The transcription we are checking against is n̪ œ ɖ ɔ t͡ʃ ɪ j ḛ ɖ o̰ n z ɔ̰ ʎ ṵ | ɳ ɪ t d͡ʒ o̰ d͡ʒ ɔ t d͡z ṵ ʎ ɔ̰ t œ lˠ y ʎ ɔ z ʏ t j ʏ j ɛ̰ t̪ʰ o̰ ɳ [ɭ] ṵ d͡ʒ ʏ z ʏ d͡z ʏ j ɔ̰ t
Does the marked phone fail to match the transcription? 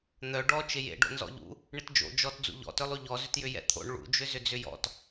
no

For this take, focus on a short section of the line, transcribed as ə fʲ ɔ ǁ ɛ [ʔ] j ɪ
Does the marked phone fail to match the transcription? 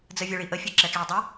yes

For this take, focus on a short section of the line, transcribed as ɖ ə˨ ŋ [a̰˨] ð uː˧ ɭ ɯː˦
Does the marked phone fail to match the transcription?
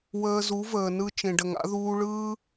yes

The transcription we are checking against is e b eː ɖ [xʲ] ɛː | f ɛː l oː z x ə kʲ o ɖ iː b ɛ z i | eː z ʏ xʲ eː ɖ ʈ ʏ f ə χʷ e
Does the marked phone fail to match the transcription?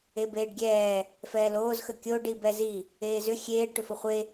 yes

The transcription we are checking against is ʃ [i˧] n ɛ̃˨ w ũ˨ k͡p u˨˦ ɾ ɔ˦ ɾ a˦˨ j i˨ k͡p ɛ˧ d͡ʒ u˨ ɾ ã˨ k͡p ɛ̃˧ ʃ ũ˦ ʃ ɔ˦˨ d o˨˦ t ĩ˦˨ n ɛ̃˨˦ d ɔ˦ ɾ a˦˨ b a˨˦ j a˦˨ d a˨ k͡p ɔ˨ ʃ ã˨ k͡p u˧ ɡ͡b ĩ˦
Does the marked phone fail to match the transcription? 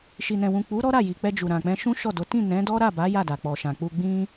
yes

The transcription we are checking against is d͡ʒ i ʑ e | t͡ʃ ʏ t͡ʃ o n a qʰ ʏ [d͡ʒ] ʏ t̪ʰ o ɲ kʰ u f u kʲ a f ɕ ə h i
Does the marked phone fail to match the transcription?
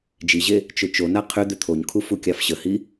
yes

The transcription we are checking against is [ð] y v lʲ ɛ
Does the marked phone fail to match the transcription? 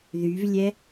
no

